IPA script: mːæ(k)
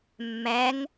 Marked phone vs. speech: incorrect: ŋ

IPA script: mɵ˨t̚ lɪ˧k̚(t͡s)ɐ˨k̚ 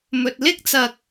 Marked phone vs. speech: correct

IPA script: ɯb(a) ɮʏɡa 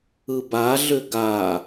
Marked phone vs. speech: correct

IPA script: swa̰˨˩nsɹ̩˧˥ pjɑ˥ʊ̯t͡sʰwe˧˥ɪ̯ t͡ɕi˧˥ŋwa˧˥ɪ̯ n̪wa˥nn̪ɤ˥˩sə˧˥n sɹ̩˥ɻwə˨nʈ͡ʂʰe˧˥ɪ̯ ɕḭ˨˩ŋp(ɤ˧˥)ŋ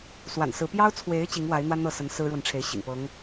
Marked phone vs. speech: correct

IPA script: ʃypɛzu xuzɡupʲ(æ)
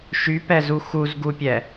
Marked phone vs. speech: incorrect: ɛ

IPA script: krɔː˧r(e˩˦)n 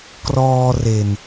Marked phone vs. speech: incorrect: e˨˩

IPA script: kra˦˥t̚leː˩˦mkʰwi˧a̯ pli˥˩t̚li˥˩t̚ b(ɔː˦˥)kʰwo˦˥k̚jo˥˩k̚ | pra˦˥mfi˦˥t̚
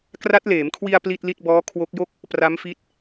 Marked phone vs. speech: correct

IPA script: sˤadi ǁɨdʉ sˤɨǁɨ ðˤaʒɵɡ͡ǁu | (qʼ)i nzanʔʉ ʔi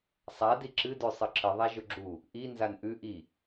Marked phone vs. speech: incorrect: ʔ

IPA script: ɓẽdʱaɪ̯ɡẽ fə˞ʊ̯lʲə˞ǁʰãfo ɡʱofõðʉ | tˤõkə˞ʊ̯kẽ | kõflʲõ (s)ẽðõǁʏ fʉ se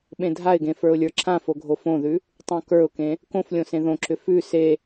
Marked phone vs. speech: correct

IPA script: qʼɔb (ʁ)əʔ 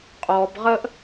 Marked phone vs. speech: correct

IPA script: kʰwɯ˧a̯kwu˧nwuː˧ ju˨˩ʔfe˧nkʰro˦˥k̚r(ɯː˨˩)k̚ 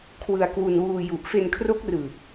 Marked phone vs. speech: correct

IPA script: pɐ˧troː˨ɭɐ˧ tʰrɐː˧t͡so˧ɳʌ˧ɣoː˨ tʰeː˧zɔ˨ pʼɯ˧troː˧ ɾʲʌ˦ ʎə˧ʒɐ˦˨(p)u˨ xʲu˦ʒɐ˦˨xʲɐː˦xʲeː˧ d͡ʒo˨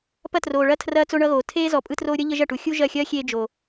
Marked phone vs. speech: incorrect: ʈ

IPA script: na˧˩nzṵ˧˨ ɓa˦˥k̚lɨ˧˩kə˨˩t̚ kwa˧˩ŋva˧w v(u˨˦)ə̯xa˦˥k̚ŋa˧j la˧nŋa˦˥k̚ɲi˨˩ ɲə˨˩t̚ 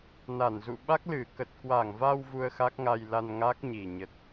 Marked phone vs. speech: incorrect: u˧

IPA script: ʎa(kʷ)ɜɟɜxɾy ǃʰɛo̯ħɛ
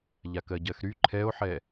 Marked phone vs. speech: incorrect: k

